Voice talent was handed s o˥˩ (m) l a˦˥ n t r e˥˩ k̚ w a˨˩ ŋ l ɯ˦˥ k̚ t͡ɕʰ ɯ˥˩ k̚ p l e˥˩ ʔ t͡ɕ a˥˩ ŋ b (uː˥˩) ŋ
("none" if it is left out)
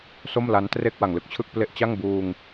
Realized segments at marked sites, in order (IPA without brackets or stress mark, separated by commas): m, uː˧